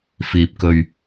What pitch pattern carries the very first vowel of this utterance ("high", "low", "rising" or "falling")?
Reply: low